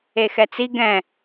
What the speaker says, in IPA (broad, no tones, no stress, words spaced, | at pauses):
exɛt͡si ɡɛ̃